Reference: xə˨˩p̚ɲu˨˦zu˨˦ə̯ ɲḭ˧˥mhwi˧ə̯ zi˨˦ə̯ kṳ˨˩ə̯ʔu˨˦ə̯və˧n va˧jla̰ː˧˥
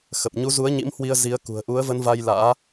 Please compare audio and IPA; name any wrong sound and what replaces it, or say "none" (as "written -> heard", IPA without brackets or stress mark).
none